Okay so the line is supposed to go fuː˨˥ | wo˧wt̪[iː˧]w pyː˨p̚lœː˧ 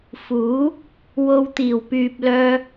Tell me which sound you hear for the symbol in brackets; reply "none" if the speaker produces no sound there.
iː˨˩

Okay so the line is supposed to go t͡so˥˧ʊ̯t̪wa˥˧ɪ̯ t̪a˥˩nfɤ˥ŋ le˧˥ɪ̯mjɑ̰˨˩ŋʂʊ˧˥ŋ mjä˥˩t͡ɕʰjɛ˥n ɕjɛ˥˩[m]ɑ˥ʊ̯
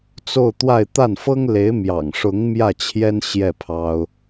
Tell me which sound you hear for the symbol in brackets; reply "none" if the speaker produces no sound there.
pʰ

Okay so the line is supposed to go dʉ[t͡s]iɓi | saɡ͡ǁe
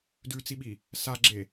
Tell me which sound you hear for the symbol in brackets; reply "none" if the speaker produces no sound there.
t͡s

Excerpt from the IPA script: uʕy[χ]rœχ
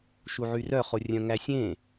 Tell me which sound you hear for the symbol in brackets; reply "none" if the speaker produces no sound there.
none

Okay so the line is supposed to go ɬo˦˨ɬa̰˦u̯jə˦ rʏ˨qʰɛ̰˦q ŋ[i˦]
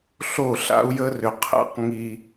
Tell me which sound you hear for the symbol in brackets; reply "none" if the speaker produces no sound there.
i˦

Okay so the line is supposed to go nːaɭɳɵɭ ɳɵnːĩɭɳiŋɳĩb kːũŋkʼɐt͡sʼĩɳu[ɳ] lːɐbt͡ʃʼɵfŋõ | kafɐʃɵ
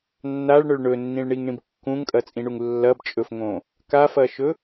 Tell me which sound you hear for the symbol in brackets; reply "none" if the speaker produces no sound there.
ŋ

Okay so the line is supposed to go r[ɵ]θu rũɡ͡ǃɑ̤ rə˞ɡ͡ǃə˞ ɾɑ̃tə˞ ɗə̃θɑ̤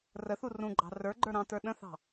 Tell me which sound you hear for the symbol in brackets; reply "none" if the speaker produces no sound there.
ə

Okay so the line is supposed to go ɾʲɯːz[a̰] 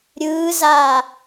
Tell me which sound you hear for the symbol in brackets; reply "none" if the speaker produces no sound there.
a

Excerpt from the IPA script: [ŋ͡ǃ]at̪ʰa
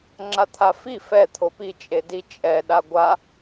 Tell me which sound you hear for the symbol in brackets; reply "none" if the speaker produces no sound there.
ŋ͡ǁ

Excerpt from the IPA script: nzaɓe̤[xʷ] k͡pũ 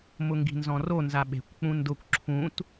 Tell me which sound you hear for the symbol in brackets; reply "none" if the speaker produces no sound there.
kʷ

